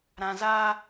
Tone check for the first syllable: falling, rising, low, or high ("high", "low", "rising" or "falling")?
low